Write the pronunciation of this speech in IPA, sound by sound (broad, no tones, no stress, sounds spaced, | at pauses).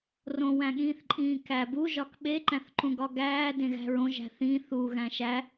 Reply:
r õ w æ̃ ɠ ĩː θ ǃʼ ĩː k æ b u ʒ ɒ k ɓ e ǃ æ̃ θ ǃ ũ ɡ ɒ ɡ æː d ẽ ɣ æ̤ ɹ õ ʒ æ̤ θ ĩ θ u ɣ æ̃ ʃ æ